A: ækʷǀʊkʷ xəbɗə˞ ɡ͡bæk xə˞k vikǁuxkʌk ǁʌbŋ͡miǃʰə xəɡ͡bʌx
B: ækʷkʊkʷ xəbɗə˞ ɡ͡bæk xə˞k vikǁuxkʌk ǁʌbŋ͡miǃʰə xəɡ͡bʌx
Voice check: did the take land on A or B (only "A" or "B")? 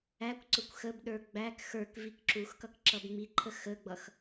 A